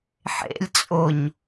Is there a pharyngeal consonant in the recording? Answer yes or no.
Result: yes